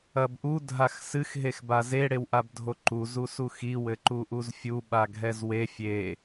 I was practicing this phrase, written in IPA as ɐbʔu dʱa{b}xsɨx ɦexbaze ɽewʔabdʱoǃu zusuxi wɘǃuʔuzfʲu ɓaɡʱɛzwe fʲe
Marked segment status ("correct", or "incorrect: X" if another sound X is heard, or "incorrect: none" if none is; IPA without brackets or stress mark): incorrect: none